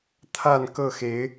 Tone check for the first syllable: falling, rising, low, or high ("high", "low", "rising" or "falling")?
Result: falling